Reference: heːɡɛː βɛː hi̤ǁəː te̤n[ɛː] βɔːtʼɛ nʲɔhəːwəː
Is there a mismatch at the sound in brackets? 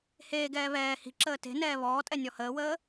no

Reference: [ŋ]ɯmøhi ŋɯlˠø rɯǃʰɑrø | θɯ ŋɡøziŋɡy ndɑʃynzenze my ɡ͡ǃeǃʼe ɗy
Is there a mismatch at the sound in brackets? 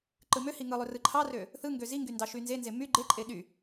yes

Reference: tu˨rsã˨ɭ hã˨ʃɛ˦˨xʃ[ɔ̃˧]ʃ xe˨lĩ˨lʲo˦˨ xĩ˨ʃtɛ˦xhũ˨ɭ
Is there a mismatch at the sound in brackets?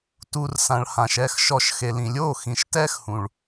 yes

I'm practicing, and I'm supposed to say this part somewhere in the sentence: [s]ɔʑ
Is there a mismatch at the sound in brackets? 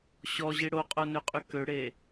yes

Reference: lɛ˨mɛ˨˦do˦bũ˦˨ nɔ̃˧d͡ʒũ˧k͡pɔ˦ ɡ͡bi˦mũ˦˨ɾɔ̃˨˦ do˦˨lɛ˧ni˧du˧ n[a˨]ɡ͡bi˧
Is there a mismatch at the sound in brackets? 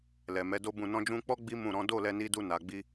no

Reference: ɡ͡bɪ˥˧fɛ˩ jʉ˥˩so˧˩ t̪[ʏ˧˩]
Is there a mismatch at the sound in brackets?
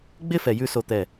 yes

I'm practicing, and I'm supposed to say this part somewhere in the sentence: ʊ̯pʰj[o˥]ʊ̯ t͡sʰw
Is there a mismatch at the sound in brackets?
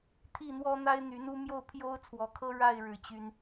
no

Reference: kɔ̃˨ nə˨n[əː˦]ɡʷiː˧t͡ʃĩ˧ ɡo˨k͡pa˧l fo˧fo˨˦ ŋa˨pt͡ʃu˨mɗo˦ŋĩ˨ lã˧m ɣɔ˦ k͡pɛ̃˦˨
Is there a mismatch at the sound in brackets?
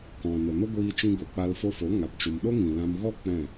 yes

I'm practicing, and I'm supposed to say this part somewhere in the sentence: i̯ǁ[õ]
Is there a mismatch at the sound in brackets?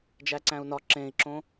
no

